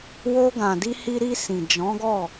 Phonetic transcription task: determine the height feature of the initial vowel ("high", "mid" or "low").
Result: mid